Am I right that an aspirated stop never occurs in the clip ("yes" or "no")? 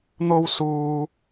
yes